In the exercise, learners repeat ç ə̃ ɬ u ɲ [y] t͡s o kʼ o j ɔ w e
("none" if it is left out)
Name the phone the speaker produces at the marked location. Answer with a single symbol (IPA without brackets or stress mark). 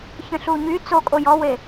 y